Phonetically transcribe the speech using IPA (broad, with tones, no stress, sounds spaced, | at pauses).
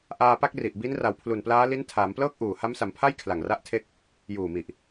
ʔ aː˧ p a˥˩ k̚ r i˨˩ ʔ b i˦˥ n r a˨˩ w pʰ l u˨˩ n p l aː˦˥ l i˦˥ n tʰ aː˩˦ m p l ɤː˥˩ k̚ ʔ uː˨˩ h a˦˥ m s a˩˦ m pʰ a˥˩ j kʰ l a˨˩ ŋ r a˥˩ ʔ tʰ e˥˩ k̚ | j uː˨˩ m i˨˩ ʔ